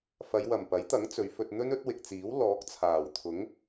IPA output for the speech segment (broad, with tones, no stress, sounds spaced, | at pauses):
f ɐ˨˧ j w ɐ˨˩ m p ɐ˨˥ j t̪ ɐ˨˥ ŋ t͡s ɵ˨˧ ɥ f ɵ˧ t̚ n̪ ɵ˥ n ɵ˨˥ t̚ w ɪ˨ k̚ t͡s iː˨˥ w l ɔː˨˥ k̚ t͡sʰ aː˨˩ w t̪ʰ ʊ˨˥ ŋ